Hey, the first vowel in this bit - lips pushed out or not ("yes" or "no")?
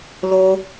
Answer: yes